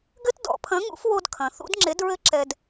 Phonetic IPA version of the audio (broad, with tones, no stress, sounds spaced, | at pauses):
ɡ ɘ˥ t d ɔ̰˩˧ pʰ ɐ̃˨˥ ŋ ṵ˨˥ f w o˧ d kʰ ɐ̃˩˧ θ ṵ˨˥ d ŋ͡ǁ e˨˥ d ɹ ɘ˥ ǁ ɛ˧ d